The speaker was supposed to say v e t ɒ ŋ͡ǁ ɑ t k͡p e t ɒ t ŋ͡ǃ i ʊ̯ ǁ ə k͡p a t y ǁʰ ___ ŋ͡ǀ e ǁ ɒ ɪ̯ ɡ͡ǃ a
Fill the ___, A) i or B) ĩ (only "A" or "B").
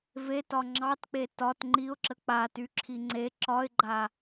A